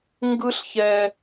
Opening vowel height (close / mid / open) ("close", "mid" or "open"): close